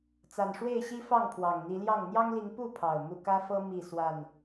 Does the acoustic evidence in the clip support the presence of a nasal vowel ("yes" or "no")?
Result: no